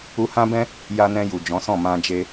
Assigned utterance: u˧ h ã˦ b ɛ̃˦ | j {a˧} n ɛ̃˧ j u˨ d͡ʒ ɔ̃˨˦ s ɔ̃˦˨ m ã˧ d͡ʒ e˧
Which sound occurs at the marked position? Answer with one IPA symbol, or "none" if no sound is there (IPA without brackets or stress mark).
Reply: a˧